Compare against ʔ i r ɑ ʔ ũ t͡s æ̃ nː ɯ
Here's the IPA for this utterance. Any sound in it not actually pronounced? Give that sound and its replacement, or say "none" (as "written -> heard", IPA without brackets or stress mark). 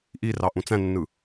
none